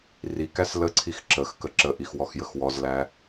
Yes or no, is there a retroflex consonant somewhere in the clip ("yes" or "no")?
no